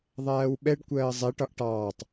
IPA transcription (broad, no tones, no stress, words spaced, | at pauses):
ðˤæːwɓɛɖ kʷɜːzˤɛ ʈɒʔʈɑːtˤ